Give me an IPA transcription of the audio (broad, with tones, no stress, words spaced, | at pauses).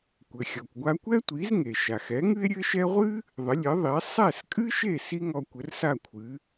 kʷɘ˩xʲɔ˩kʷ ɡʷa˧kʷɛ˥tʷi˩˥z ŋe˩ʃa˩xɛ˩˥ ŋɨ˥e̯ɾʲɘ˥ʃɛ˥ ʁʷɨ˥ | ðˤɘ˩˥lʲɘ˩˥ðˤi˩˥e̯ sˤɛ˥˩skʼɨ˥ʃe˥˩ si˥ŋɔ˧ kʷɘ˩˥rsa˥˩ kʷʰɨ˩˥